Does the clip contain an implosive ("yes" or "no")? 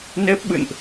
yes